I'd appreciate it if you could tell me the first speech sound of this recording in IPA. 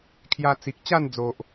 kʰ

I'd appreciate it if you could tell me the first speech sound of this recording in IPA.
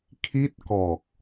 kʰ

